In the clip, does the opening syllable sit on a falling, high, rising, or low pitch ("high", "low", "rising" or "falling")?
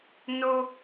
high